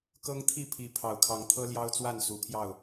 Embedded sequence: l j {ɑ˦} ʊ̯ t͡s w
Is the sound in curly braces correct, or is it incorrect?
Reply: correct